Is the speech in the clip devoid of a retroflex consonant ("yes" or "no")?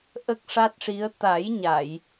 no